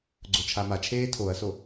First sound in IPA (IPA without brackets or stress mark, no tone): ɡ͡ǀ